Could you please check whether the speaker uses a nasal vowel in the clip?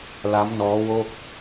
no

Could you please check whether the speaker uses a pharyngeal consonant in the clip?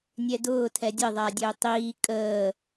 no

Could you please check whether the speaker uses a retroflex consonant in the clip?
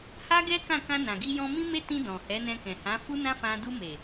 no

